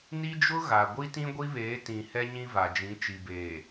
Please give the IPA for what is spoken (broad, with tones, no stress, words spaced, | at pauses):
ni˦d͡ʒʊ˦ɣa˨ ɡʷi˦tĩ˦ɡʷi˦βeː˨˦ tĩ˨ hɛ˦ɲĩ˦va˨ d͡ʒĩ˨˦t͡ʃi˨beː˨